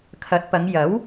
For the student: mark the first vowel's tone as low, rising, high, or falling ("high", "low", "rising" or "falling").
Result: rising